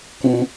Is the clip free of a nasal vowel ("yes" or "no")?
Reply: no